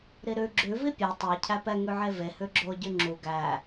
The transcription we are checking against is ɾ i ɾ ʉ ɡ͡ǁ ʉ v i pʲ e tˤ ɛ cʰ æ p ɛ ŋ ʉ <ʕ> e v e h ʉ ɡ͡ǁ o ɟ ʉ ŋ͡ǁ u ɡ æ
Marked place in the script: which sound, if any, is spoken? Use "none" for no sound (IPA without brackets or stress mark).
ʕ